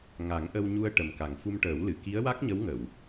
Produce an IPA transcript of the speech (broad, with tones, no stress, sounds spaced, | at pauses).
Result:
ŋ a˨˩˦ ŋ ʔ ə˧ w ɲ u˧ ə̯ ʈ ə˨˩ m k a˨˩ ŋ f u˧ m ʈ əː˨˩˦ w l ɨ˨˩˨ k i˧˥ ə̯ w a˦˥ k̚ ɲ ə˧˥ w ŋ ə˨˩˨ w